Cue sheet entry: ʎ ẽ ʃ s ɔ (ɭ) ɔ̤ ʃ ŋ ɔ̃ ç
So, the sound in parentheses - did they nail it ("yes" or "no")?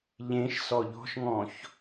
no